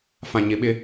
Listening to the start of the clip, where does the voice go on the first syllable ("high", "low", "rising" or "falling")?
low